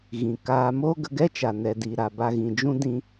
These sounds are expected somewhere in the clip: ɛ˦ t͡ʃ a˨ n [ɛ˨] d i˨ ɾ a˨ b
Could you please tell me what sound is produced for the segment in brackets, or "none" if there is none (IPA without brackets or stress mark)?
ɛ˨